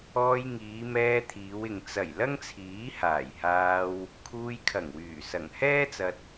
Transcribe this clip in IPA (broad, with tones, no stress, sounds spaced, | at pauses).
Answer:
ɔː˧ j ŋ iː˨˧ m ɛː˧ t̪ʰ iː˨˧ w ɪ˨ ŋ t͡s ɐ˨˩ j l ɐ˥ ŋ t͡sʰ iː˨˥ h aː˨˩ j h aː˧ w | kʰ uː˧ j kʰ ɐ˨˩ ŋ w yː˨˩ s ɐ˨˩ ŋ h ɛː˥ t͡s ɐ˧ t̚